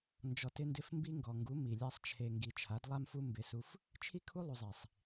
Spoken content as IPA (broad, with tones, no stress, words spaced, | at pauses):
nd͡ʒɔ˧tɪ˦ndɪ˦f mbi˦ ŋɡɔ˨ŋɡu˨˦ mi˨lʲa˦sˤt͡ʃʰe˧ ŋɡi˨t͡ʃʰa˨˦dlˠa˦mfu˦ mbɪ˧su˧f | t͡ʃʰi˦kʰu˦ lˠu˧zˤi˨sˤ